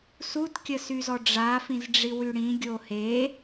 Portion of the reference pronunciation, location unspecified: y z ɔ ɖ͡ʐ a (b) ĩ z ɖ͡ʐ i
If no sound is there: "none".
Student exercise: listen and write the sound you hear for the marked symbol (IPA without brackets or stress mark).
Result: f